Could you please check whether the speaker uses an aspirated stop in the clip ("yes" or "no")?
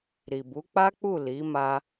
no